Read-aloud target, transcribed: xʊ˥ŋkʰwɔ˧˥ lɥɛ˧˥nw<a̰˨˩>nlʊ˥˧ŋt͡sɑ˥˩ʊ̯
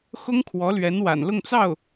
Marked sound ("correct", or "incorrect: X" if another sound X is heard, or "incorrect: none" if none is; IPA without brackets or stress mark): correct